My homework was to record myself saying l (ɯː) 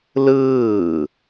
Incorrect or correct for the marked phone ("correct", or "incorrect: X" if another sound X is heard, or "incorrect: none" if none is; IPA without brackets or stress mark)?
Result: correct